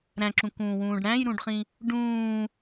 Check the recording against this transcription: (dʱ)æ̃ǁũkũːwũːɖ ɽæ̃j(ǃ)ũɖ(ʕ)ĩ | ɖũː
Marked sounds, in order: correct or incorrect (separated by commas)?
incorrect, incorrect, incorrect